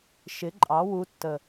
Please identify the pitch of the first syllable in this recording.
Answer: rising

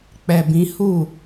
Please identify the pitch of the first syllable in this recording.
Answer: low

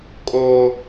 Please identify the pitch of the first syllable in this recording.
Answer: low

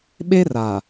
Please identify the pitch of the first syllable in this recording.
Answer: high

